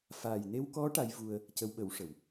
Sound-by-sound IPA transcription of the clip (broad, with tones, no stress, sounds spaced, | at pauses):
f aː˨˩ j n e˧ w k ɔ˧˥ ʈ a˧˥ j v u˧ ə̯ | c ə˧˥ w ɓ ə˨˩˦ w ʂ ə˨˩˨ w